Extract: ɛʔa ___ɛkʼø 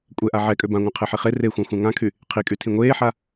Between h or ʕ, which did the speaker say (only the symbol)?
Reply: ʕ